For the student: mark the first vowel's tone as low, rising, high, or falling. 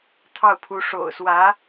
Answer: falling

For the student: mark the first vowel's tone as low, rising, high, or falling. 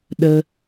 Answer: high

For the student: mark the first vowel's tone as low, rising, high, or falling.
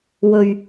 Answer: low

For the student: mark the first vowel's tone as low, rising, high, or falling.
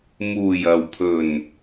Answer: low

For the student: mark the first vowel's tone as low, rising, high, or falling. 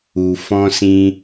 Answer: low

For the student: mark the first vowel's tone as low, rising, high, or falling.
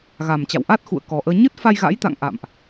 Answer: low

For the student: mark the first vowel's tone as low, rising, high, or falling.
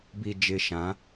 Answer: low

